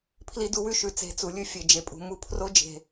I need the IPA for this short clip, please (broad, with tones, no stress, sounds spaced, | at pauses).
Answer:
pʰ l i˦ d u˦ w ʉ˦ ʃ ʉ˨˦ t͡s e̤˨˦ t͡s u˨ lʲ ʉ˦ fʲ e˨ d͡ʒ e˨ pʼ ṳ˨ m u˦ pʰ r o˦ d͡ʒ e̤˨